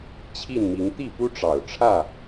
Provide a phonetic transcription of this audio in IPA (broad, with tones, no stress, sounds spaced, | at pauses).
t͡ɕʰ i˥˨ n m i˨˦ ŋ t̪ i˥˨ p u˦ ʈ͡ʂ ɑ˨˩ ʊ̯ ʈ͡ʂʰ ä˥˨